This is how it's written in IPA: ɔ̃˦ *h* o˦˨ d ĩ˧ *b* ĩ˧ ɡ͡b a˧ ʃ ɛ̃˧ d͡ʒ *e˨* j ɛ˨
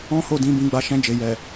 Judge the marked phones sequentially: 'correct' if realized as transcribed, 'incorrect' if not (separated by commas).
correct, correct, correct